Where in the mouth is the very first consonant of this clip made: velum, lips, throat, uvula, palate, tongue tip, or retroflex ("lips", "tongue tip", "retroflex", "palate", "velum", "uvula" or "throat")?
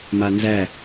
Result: lips